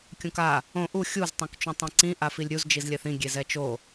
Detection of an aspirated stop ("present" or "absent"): absent